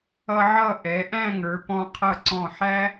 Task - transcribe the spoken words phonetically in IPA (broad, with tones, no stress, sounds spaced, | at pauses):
ʌ˧ ʕ ʌ˧˩ ʔ ɛ˩˧ ʔ æ̃˥˧ ŋ ə˞˩˧ p ɔ̃˧ qʰ ʌ˧˩ ǀ ɔ̃˧˩ ħ æ˥